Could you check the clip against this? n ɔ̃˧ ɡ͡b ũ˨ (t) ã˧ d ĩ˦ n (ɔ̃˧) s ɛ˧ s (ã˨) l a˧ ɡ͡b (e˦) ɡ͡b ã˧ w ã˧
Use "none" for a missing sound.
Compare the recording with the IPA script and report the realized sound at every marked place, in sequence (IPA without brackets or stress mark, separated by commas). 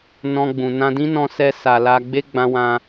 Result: n, ɔ̃˧, a˨, e˦